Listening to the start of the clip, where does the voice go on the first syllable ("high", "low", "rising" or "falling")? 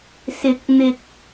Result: rising